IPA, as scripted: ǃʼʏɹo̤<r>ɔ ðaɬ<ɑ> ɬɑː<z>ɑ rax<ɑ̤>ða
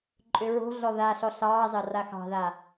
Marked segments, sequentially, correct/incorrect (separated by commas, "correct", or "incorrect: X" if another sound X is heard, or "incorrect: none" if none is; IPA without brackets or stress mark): incorrect: ɮ, incorrect: ɔ, correct, correct